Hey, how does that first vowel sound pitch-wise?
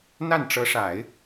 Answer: falling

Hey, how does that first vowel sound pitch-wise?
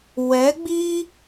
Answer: rising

